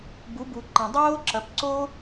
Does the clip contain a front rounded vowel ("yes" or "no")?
no